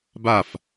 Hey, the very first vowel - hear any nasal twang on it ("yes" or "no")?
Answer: no